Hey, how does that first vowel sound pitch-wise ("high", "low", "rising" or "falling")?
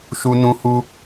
high